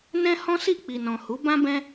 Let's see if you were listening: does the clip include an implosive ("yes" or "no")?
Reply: no